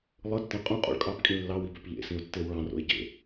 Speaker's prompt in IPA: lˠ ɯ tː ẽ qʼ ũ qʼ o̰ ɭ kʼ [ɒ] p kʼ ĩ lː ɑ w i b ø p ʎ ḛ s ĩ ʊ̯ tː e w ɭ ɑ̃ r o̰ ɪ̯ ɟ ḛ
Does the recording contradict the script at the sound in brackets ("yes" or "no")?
yes